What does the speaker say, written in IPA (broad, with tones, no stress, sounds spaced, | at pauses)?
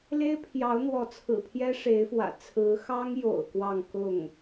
l e˥ ɪ̯ pʰ j ɑ˧˥ ʊ̯ n̪ w ɔ˧˥ t͡sʰ ɹ̩˨˩ pʰ j ɛ˥ ʂ e˧˥ ɪ̯ f w ä̰˨˩ t͡sʰ ɹ̩˧˥ x ɑ˥ ŋ j o̰˨˩ ʊ̯ k w ɑ˥˧ ŋ k ʊ˥˩ ŋ